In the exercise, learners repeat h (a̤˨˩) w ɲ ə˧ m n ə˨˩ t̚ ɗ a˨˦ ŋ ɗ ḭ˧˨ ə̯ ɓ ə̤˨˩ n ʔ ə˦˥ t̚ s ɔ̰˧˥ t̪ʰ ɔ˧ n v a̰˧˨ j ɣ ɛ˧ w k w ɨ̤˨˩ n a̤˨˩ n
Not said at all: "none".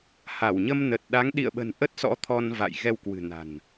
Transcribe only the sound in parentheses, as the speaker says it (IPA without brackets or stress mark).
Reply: a˧˩